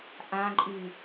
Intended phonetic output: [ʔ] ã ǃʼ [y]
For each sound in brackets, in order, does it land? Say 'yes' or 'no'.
yes, yes

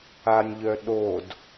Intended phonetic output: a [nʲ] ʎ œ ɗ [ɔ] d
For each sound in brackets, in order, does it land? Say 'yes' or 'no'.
yes, no

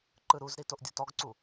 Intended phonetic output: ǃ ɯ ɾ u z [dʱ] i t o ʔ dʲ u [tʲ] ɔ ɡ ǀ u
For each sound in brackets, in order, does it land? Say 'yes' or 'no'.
no, no

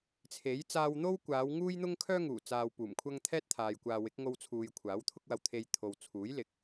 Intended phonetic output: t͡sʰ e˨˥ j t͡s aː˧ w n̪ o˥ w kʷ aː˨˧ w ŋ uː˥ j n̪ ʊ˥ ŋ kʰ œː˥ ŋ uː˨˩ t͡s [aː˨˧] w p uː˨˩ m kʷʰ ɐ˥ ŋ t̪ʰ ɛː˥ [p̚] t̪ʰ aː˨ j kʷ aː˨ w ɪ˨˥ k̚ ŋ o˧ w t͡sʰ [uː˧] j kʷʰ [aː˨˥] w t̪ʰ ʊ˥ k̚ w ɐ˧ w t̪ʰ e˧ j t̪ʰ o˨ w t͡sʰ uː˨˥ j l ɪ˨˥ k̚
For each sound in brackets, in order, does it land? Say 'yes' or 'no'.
no, no, no, yes

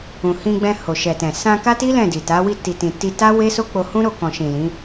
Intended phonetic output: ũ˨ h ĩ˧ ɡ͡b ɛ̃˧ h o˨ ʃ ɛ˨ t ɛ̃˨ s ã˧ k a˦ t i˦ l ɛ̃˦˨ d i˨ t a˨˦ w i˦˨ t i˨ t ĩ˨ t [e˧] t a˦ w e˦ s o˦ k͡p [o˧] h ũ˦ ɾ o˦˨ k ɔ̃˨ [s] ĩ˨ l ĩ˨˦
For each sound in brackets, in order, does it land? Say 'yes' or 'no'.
no, yes, no

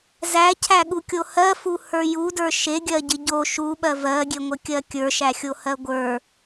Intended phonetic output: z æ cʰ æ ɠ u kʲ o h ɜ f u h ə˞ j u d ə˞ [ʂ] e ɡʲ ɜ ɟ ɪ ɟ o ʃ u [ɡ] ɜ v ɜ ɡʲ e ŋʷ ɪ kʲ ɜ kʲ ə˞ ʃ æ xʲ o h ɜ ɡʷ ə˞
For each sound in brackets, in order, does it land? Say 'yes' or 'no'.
no, no

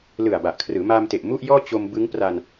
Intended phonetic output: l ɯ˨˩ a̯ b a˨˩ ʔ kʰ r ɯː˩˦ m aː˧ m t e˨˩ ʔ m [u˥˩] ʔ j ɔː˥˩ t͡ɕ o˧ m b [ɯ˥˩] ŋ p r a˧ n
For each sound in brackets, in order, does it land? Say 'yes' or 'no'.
yes, no

